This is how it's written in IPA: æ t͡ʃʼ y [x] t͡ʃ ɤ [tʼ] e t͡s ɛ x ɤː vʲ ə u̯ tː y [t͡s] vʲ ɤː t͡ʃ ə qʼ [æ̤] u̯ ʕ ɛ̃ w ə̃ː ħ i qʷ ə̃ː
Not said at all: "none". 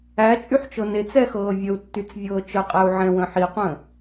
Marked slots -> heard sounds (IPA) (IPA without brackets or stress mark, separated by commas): ħ, n, t͡s, æ